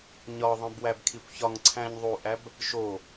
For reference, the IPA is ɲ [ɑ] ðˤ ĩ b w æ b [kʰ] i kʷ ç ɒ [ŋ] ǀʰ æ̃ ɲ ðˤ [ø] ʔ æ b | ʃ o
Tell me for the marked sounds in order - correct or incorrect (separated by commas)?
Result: incorrect, correct, correct, incorrect